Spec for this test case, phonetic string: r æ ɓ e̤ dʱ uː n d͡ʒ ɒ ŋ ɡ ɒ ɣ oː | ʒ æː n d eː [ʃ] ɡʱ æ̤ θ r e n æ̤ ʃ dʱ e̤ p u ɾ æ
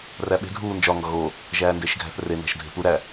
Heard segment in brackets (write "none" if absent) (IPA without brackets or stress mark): ʃ